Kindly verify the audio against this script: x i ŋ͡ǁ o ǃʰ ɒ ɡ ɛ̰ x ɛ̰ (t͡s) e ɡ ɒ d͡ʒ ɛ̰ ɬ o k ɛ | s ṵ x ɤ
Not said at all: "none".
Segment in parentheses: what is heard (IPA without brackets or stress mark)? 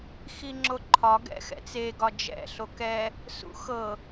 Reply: t͡s